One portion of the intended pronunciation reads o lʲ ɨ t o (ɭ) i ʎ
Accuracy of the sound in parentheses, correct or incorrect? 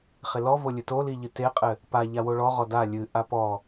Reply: incorrect